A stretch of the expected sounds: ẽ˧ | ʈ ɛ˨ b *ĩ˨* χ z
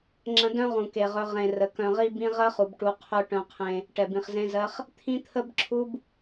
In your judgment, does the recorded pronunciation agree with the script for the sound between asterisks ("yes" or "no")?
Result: yes